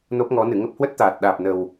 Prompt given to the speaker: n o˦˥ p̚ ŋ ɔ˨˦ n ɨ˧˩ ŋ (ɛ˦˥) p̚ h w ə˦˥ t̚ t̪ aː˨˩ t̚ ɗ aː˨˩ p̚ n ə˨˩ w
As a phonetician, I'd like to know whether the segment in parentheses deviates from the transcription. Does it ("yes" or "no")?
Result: yes